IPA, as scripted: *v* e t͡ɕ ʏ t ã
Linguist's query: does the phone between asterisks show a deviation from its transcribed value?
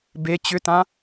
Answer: yes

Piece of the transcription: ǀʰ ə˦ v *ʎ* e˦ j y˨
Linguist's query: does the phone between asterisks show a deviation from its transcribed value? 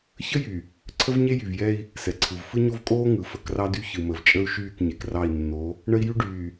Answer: yes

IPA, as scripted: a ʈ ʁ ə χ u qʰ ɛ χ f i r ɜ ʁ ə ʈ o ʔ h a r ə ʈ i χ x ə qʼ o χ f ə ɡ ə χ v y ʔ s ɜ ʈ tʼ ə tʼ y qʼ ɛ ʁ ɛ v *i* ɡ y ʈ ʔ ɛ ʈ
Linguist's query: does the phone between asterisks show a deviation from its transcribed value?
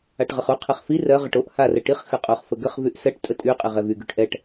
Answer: yes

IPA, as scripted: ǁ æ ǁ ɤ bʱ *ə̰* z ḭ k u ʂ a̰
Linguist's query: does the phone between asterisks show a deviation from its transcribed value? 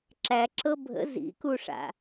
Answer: no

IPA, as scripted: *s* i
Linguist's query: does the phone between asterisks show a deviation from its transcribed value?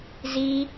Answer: yes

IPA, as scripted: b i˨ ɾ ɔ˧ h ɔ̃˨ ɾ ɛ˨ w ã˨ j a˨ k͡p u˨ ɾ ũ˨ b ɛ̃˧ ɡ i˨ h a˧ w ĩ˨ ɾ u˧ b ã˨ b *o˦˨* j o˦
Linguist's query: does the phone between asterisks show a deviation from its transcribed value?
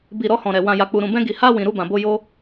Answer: yes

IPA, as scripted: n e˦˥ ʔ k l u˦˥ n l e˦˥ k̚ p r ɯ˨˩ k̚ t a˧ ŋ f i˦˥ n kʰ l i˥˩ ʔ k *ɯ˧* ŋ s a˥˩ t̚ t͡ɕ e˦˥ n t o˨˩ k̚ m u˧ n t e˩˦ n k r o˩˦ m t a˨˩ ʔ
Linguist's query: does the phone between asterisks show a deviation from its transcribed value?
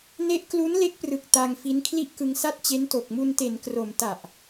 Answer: no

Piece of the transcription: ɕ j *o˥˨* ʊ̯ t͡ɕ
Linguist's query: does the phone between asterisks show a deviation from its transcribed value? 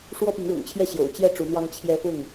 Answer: yes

